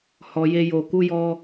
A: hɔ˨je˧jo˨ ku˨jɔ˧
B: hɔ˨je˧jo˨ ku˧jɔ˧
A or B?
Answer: B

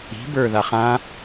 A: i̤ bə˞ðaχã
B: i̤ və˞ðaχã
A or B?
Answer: A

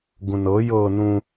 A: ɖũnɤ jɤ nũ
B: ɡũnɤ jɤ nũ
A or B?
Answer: B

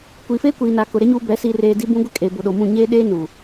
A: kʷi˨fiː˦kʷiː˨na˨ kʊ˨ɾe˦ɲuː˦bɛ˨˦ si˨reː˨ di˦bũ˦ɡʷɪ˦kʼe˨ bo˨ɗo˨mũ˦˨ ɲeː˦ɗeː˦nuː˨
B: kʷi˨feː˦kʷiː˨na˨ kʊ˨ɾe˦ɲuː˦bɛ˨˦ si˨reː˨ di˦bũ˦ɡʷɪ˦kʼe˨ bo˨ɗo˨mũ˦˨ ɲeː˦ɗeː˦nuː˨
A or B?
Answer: B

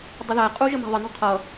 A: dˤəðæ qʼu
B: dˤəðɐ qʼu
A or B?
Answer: A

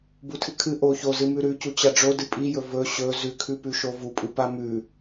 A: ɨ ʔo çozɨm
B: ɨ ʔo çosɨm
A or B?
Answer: A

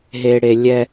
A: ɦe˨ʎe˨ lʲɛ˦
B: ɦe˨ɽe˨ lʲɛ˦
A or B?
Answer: B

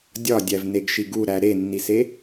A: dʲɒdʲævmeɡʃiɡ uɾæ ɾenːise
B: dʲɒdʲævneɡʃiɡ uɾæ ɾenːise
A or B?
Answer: B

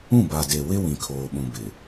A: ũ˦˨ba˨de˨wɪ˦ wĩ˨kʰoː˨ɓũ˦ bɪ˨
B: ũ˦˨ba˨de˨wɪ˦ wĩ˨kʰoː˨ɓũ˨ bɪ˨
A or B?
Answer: B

